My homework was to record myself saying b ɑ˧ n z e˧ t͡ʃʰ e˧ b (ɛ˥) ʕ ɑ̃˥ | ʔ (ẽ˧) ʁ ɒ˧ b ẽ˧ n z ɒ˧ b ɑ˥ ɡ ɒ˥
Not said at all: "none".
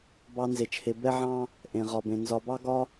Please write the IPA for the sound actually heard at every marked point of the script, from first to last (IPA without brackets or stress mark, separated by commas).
ɛ˥, ẽ˧